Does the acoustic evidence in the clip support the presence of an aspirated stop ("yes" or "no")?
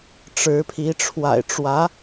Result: yes